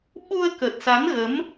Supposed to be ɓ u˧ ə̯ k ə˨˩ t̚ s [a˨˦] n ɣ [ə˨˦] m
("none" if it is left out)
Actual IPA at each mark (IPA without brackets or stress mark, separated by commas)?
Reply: a˨˦, ə˨˦